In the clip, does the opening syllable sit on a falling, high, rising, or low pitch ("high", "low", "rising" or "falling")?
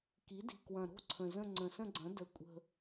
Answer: rising